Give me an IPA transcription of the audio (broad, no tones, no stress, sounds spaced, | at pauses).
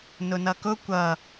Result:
n ʊ n ʌ k ʊ kʷ ʌ